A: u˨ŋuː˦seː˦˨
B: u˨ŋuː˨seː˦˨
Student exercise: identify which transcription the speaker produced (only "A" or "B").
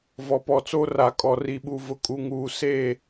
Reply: B